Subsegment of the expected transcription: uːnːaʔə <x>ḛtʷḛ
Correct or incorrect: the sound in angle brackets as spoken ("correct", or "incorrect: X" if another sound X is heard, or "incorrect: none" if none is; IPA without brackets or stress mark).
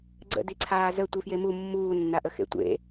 correct